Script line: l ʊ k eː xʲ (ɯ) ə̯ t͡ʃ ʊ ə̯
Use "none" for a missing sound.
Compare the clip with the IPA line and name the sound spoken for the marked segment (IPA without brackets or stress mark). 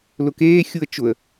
u